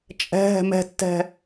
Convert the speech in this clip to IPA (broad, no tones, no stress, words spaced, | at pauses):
t͡ʃʼɛ̤ ɦɛ̤mɛ̤tːɛ̤